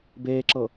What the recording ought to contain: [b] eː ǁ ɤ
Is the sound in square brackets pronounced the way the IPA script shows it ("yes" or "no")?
yes